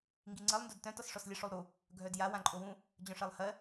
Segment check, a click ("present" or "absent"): present